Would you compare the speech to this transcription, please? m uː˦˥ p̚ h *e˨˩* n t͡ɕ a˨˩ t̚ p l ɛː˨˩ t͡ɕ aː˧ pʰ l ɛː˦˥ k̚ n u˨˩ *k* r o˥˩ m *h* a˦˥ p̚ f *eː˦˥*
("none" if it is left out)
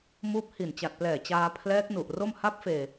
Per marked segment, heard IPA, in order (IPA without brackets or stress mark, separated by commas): i˨˩, ʔ, h, eː˧